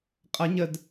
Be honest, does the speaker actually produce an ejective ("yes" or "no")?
yes